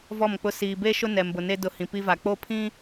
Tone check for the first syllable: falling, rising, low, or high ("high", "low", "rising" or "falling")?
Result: falling